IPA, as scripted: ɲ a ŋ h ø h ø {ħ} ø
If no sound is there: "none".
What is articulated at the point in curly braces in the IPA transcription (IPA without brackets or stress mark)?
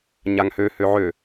ʕ